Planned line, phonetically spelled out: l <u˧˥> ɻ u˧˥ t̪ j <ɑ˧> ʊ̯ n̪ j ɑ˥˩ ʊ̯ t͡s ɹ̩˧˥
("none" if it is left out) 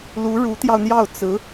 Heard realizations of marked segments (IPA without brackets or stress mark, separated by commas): u˧˥, ɑ˧